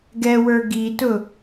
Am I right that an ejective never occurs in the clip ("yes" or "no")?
yes